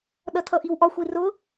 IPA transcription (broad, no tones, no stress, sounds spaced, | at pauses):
ɗ ʌ tʰ ʌ ʔ i w ʔ ɒ xʷ i r ʊ